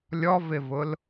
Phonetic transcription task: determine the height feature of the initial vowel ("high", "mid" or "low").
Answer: mid